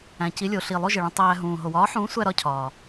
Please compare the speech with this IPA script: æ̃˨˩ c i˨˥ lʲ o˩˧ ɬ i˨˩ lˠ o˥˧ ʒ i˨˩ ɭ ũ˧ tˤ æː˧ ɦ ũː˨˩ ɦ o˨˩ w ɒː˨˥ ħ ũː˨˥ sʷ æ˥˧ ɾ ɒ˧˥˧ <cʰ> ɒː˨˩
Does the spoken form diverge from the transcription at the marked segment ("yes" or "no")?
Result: no